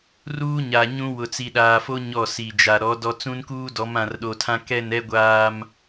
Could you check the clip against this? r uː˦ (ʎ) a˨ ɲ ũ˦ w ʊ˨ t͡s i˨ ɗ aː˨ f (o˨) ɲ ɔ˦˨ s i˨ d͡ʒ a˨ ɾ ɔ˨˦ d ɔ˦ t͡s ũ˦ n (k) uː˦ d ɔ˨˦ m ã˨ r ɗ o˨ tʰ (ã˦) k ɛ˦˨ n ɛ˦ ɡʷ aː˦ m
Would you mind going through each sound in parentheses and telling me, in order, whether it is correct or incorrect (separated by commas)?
incorrect, incorrect, correct, correct